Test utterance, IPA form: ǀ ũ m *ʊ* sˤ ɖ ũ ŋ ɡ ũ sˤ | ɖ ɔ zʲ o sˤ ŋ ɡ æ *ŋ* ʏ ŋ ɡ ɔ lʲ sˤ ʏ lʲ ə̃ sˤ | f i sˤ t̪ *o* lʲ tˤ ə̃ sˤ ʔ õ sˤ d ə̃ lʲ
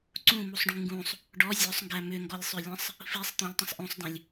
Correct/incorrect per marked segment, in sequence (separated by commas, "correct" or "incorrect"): incorrect, incorrect, incorrect